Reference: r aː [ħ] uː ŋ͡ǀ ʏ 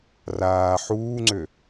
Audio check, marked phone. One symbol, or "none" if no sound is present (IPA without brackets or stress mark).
ħ